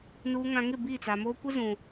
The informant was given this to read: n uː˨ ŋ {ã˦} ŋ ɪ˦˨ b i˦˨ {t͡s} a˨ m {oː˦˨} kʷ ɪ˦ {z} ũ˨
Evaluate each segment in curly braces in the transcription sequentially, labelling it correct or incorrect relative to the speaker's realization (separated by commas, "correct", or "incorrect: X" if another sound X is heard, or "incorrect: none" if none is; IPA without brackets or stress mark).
incorrect: ã˨, correct, incorrect: oː˦, correct